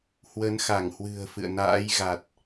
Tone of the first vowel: rising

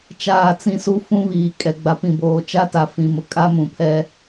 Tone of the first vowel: falling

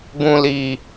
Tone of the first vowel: low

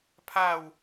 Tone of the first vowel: falling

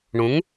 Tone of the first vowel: rising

